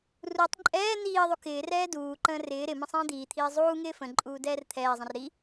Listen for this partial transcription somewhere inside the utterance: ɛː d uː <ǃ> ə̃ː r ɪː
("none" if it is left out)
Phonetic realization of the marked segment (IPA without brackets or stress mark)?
ǃ